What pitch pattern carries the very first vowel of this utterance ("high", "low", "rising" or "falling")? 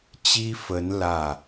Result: high